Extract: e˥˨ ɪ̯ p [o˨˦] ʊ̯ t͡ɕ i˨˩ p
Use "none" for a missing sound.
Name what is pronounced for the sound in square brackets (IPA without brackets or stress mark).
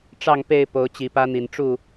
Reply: o˨˦